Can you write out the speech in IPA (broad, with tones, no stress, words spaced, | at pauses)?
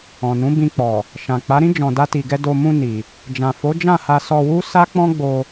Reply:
ɔ̃˨nũ˨˦bĩ˧k͡pɔ˨ | ʃã˨k͡pa˨˦ɾĩ˦ d͡ʒɔ̃˧da˦ti˧ɡɛ˦ do˧mũ˧ ni˨ | d͡ʒã˨fo˨˦d͡ʒã˦˨ ha˧sɔ˧wu˦ sa˦k͡pɔ̃˦ ɡ͡bo˧